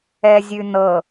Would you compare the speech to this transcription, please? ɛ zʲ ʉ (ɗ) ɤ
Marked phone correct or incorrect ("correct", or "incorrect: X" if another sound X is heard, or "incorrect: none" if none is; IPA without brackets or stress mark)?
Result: incorrect: n